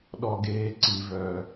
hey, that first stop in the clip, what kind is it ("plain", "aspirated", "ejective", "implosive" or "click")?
implosive